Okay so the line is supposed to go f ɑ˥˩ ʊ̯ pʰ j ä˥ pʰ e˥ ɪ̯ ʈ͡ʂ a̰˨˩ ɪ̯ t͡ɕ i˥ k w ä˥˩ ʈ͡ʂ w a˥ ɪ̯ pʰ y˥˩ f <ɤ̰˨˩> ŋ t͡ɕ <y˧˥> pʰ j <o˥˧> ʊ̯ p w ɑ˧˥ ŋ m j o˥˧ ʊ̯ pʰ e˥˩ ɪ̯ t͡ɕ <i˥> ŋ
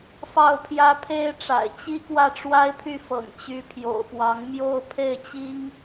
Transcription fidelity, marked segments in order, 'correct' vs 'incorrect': correct, correct, incorrect: o̰˨˩, correct

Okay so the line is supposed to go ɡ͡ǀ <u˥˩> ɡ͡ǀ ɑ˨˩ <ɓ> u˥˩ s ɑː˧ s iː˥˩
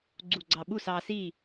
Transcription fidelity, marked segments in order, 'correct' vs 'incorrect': incorrect: u˨˩, correct

